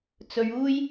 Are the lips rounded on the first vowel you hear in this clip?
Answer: yes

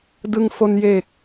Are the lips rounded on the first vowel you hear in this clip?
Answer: no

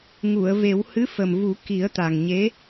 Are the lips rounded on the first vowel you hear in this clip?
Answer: yes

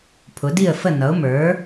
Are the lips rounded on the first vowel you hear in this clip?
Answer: yes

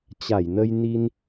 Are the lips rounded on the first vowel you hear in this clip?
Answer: no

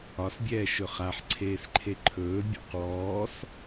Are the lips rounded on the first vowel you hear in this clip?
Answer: yes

